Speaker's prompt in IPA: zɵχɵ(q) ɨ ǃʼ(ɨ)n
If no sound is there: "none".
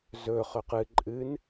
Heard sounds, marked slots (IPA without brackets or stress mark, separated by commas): q, ɨ